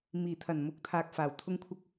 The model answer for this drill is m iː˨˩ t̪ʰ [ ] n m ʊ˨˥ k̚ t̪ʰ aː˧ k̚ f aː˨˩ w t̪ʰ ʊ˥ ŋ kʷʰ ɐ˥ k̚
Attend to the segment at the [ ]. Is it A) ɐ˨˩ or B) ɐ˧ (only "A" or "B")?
A